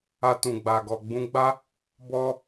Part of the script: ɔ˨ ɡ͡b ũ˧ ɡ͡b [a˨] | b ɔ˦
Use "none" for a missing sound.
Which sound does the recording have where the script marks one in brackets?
a˦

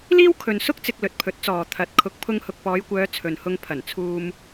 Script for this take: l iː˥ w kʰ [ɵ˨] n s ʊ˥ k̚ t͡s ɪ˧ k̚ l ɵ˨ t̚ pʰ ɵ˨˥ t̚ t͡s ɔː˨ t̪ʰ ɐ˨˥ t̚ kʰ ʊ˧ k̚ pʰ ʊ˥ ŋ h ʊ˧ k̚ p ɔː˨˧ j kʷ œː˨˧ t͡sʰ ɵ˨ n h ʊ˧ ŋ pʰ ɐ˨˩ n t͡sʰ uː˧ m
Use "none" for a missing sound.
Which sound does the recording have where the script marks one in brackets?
ɵ˨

